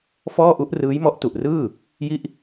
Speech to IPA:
fɔː˥˩ʔu˦˥ʔ rɯː˦˥jmɔ˦˥ʔtu˨˩ʔrɯː˥˩ | ji˥˩ʔ

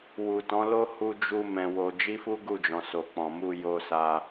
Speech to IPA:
wu˨tɔ̃˨˦lo˦ hu˧d͡ʒu˧ mɛ̃˧wo˧ d͡ʒi˦fu˦ɡu˦˨d͡ʒɔ̃˨ so˨k͡pɔ̃˨mu˧ jo˧ sa˧

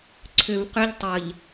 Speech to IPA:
ǀʰʏv qʏʎ tˤəʎ

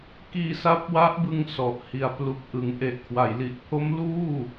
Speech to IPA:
kiː˧sa˦˥p̚wa˦˥ʔbɯ˧ŋ sɔ˨˩ʔ hi˨˩a̯plu˨˩k̚ ʔɯ˩˦ŋʔe˨˩ʔkʰwa˩˦j li˨˩ʔpʰo˦˥m luː˥˩

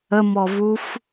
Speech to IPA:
əmɔvuf

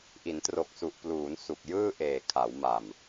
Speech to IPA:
ʔi˩˦ntro˨˩k̚su˨˩ʔpluː˩˦n su˨˩k̚jɯː˥˩ ʔeː˨˩kʰa˩˦wma˨˩m

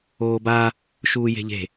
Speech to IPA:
oːba | ʃuːje̤ʎe̤

